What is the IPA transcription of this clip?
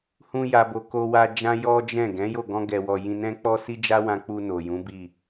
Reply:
h ũ˦ j a˧ b o˧ k o˧ w a˧ d͡ʒ ã˦ j ɔ˦ d͡ʒ ɛ̃˦˨ ɡ ɛ̃˨˦ j o˦˨ ɡ ɔ̃˧ ɡ ɛ˨ w ɔ˨ j ĩ˧ n ɛ̃˦ k͡p ɔ˦ s i˦ d͡ʒ a˦ w ã˧ k͡p u˧ n o˨ j ũ˨˦ b i˦˨

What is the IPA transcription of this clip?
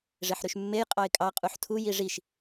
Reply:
ʐ e ħ ɾ y ʃ mː e j qʼ ɑ ɪ̯ kʼ ɑ qʼ u ħ tʰ u j i ʐ i ʃ

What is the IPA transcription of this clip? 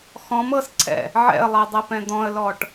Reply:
x ɔ̃ m ɤ s ǀʰ ɛ̰ | ʕ ɛ̰ ə̯ lˠ ɛ dˤ ɛ p ɛ̃ d̪ ɔ̃ ə̯ l ɔ ʈ

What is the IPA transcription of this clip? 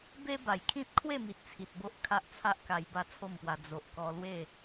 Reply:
b e˦ b a˨˩ j kʰ ĩ˦ t̚ kʰ w e˥˧ m i˨ t̚ t͡sʰ i˨ t̚ b o˦ ʔ kʰ a˦ ʔ t͡sʰ a˦ ʔ k a˧ j b a˥˧ t͡sʰ o˥˧ m p w a˧ d͡z o˨ ʔ k ɔ˧ l w e˥˧

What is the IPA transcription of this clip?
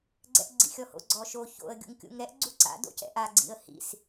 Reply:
ɡ͡ǀ ɛ̰ ʔ ɡ͡ǀ ḭ xʲ ɔ h o̰ ɡ͡ǀ ɔ ʃ o ç o̰ ə̯ ɡʲ ṵ ŋ kʲ ṵ ŋ ɾ ɛ ʔ ɡ͡ǀ u ǀ a̰ d o̰ c ɛ̰ ʔ a ɡ͡ǀ ḭ ə̯ h ḭ s

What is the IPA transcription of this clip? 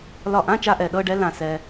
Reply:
l ɒ˧˩ ʔ ã˧˥˧ t͡ʃ a˧ ʔ ɛ˩ ɗ ɤ˧˥˧ ɖ ɛ˧˥ l ã˧˩ s ɛ˧

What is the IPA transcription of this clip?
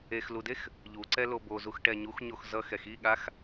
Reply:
e x l u d e x | ʎ u ǀ ɛ l o b o z u x ʈ ɛ ɲ u x ɲ o x z ʌ x ɛ x i ɠ a x

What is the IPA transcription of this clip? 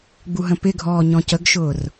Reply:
ɡ͡b u ɦ ə̃ p ɪ ɡʱ ɔː ɲ ɔ̃ c ə ɡ ʃ ʊː r

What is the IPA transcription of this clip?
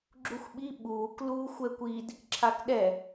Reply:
ɡ͡ǁ u xʷ ɓ i ɓ uː k l uː xʷ ɛ kʷ i d | ǁʰ a k ɗ ɛ

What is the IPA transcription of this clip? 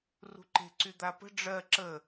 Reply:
r ṳ ǃ e̤ ǀ y d̪ a p ə̤ ɖ͡ʐ ɜ ǁ ə

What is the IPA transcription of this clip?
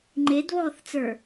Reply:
ŋ͡ǃ e d β ɔː θ t͡s ə˞

